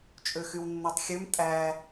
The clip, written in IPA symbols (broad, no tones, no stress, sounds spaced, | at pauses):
t͡ʃʼ ø x y w nː e tˤ xʲ ø m tʼ æ